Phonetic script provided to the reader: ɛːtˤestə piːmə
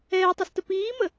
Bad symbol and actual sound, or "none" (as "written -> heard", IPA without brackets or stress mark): none